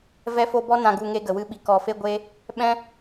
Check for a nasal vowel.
present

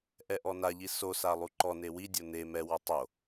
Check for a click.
present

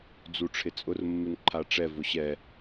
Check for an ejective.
present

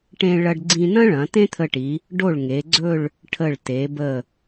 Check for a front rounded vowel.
absent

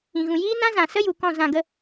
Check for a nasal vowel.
present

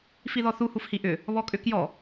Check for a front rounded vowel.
present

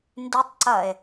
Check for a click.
present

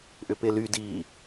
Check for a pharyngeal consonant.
absent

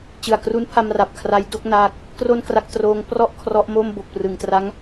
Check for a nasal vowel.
absent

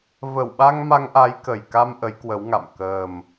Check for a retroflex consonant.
absent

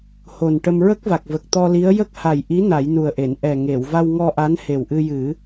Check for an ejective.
absent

